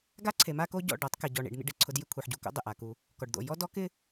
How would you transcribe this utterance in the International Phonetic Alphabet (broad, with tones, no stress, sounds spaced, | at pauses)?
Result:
ɡ a˦ ǀʰ e˨ m a˦ k o˦ ɟ ɔ̰˦˨ ɖ ɔ˨˦ tˤ k ɛ˨ ɟ ɔ˨ ɳ ḭ˨ ɖ n̪ ḭ˦ ɖ ɪ˨ ǀʰ ʊ˦ d j ɪ˦ kʷʰ ɛ˨ ħ ɟ u˨ k o̰˦ dˤ ɪ˨ ʔ a˨ k u˦ | k ɔ˨ ɖ d̪ o̰˨ j ɔ˦ d ɔ˦ k ɪ˦